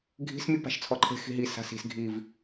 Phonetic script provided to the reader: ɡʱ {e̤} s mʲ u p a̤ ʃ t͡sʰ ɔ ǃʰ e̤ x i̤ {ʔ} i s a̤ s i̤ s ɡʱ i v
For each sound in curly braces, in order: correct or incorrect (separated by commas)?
incorrect, incorrect